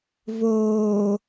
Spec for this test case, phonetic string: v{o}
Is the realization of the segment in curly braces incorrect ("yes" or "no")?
yes